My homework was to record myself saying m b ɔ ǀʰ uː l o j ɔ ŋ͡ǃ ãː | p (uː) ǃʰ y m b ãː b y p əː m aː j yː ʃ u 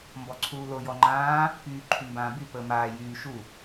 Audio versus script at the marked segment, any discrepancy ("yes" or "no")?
yes